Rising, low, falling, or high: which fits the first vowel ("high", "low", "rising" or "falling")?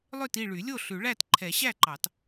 falling